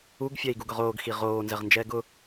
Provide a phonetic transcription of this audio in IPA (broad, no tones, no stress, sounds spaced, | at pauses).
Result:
u ɡ fʲ ɛ i̯ ɡ u ɡ ʊ ʁ oː ɡ x i ʁ oː n z ɛ ʁ n d͡ʒ ɛː ɡ ʊ